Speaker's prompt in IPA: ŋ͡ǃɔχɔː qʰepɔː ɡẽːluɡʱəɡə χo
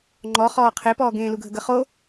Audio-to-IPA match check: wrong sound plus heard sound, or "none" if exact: none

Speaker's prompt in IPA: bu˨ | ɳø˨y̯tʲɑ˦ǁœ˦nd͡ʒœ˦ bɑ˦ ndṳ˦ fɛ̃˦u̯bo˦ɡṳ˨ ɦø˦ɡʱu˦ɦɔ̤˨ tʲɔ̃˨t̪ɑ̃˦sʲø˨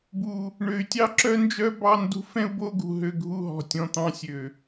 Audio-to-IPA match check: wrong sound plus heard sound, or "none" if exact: none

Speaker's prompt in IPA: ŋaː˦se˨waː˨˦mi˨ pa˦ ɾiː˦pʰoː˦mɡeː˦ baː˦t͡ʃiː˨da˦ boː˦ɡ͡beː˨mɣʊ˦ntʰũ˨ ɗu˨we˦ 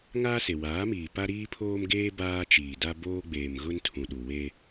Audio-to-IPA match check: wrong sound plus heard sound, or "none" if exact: i˨ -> iː˨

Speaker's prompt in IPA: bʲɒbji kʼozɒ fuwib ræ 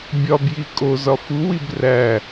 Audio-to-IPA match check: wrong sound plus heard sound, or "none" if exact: none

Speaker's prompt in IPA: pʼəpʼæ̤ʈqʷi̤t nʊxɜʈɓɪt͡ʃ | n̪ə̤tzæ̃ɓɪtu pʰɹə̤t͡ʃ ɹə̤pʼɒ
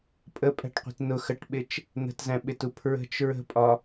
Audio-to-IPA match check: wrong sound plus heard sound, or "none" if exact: none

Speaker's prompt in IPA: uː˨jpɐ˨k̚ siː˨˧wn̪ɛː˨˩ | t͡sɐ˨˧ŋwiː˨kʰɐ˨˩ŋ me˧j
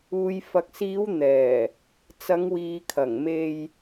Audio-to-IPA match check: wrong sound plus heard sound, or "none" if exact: p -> f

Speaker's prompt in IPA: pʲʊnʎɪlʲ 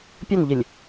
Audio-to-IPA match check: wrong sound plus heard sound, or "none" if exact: none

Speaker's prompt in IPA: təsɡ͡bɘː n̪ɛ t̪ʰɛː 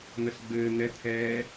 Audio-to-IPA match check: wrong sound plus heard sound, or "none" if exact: t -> n̪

